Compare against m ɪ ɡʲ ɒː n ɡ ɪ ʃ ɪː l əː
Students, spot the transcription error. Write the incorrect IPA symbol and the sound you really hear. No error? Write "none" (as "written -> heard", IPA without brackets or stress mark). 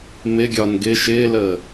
none